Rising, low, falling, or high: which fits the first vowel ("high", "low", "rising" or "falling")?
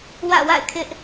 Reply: falling